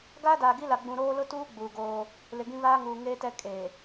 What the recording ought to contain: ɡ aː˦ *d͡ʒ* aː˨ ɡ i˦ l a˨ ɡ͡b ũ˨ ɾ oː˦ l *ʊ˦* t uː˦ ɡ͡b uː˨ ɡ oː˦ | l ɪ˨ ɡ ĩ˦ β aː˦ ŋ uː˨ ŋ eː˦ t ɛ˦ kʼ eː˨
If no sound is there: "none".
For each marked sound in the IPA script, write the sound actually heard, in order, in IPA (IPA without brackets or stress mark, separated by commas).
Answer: d, ʊ˦